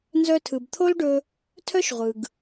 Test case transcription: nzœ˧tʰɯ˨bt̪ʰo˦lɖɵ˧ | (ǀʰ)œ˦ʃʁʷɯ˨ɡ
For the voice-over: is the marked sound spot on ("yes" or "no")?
no